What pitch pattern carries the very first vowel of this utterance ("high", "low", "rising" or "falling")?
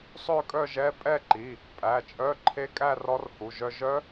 falling